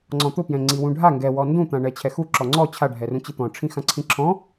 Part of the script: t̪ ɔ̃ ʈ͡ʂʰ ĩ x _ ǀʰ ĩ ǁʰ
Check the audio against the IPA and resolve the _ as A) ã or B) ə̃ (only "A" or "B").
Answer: A